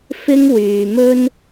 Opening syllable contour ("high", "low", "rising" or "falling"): high